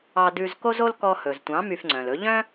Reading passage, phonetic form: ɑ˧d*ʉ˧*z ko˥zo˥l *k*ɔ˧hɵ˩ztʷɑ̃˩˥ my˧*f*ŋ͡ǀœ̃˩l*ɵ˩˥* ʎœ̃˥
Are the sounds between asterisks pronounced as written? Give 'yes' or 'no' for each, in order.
yes, yes, yes, yes

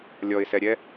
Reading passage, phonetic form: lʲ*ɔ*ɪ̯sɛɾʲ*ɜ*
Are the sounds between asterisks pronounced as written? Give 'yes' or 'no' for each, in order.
yes, no

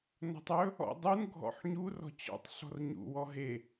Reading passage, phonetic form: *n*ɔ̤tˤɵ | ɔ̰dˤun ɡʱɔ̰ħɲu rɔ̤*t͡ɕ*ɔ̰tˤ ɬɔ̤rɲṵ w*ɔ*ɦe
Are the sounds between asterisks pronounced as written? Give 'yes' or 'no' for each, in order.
yes, yes, yes

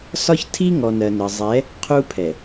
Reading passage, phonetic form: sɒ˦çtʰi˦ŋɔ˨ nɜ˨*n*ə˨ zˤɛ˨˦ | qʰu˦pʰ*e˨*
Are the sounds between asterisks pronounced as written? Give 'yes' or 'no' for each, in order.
yes, no

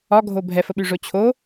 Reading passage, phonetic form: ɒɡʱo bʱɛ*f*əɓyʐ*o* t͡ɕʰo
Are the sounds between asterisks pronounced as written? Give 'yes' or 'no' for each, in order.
yes, yes

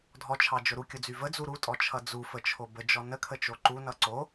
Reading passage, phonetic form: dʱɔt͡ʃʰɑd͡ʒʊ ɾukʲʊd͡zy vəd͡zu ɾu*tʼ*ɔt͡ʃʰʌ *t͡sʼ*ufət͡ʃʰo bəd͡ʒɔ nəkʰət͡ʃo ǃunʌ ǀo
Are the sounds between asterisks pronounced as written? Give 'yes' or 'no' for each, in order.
yes, no

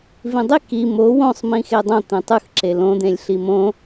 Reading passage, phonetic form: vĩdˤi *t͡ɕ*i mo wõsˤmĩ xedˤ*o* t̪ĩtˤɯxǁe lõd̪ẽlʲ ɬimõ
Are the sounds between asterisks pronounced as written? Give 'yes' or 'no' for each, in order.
no, no

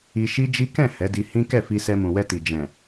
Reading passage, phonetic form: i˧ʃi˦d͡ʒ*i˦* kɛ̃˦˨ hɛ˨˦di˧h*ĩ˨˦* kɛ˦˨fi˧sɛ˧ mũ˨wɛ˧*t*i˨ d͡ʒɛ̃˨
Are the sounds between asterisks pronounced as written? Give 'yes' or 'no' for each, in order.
yes, no, yes

